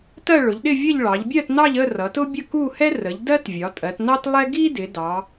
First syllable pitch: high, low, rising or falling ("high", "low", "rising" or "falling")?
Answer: falling